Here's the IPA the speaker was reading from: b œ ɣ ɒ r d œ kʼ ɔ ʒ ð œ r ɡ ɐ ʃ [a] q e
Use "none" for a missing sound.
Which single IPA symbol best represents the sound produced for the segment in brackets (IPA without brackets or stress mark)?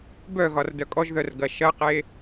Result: ɐ